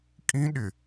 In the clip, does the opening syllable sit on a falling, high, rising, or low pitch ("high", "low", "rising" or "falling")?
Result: high